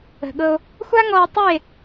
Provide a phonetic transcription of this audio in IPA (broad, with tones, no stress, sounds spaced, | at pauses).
ə̤˨ ɠ ɤ˧ o̯ | xʷ a˦ ŋ ɔ˧ e̯ tˤ ʉ˦˨ e̯